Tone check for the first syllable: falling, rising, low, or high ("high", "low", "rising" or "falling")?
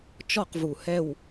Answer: falling